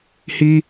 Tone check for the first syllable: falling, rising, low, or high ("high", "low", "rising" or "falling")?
high